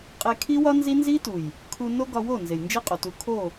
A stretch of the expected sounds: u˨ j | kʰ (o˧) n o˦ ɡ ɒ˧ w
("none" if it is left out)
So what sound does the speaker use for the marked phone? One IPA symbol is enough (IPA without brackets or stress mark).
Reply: u˧